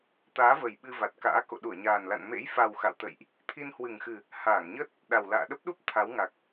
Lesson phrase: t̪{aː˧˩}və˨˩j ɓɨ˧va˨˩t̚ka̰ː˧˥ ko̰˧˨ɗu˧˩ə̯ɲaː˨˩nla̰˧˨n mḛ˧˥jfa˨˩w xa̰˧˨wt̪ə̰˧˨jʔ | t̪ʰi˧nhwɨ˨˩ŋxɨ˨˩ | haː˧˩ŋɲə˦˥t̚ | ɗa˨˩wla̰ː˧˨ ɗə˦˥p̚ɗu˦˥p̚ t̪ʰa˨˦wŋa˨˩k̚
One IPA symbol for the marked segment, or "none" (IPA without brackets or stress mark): aː˨˦